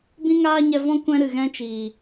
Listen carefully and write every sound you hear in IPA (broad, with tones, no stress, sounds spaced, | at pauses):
b ĩ˦ ŋ aː˦ ɲ ɛ˧ v ɔ̃˦ kʷ ɛ̃˦ ɾ ɨ˨ ɣ ɛ̃˦ t͡ʃ iː˨